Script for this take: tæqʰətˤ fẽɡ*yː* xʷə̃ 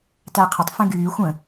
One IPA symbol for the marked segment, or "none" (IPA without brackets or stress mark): yː